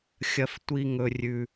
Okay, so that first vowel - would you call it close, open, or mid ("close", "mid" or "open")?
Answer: open